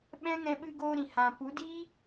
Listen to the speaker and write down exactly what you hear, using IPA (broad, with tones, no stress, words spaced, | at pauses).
ɓɛ̃˦ŋɛ̃˧ ɓɨ˧ɡoː˧ɾĩ˨ hã˨pu˨˦ di˦